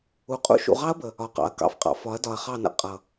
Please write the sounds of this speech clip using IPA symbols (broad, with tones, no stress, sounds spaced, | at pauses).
u˨ qʼ ṵ˦ ʃ ṵ˨ ʁ ɑ˦ ɐ̯ b ə˨ | ɒ˨ q ɑ̰˨ ɐ̯ k ɑ̰˦ f qʼ ɑ̰˨ f ɒ˨˦ ɐ̯ d ɒ˨ ɐ̯ χ ɑ˦˨ n ə̰˦ qʼ ʌ˨